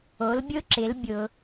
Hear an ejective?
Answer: no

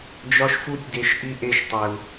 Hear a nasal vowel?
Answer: no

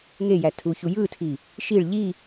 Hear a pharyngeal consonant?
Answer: no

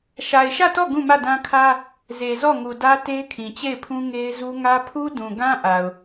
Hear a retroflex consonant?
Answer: no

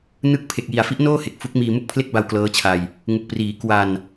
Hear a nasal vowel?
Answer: no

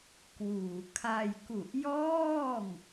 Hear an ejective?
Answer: no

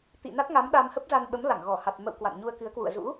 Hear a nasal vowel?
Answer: no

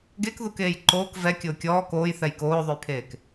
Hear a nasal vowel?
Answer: no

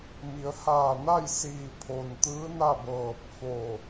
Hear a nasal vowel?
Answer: no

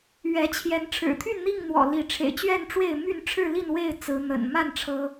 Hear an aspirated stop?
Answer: yes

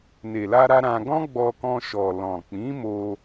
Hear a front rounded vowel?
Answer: no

